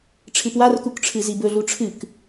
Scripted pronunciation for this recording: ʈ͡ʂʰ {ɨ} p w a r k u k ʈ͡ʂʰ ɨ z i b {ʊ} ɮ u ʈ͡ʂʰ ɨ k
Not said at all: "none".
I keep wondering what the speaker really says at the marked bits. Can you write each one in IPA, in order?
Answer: ɨ, ɵ

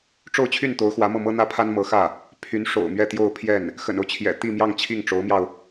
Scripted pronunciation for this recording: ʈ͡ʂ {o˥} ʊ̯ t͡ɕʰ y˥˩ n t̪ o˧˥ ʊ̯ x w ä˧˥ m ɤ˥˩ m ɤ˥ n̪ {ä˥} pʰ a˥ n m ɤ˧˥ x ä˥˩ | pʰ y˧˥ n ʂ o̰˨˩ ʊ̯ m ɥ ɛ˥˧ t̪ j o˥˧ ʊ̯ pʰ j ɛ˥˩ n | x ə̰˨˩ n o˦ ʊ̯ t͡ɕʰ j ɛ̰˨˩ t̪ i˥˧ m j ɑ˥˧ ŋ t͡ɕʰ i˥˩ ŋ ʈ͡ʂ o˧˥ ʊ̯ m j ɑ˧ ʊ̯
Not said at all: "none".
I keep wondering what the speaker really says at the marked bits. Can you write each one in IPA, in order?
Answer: o˥˧, ä˥

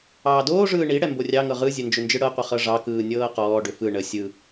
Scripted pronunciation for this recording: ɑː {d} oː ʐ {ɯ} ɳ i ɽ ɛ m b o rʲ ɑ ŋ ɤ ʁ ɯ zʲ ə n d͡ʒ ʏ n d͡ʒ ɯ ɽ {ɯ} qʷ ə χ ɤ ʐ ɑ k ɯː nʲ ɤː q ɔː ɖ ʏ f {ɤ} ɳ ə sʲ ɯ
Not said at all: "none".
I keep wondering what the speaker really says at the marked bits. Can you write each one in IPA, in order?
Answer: d, ɯː, ɤ, ɯ

